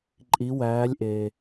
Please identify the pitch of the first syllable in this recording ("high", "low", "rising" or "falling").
rising